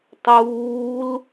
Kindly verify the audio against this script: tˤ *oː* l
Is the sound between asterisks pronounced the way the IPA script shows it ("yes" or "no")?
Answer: no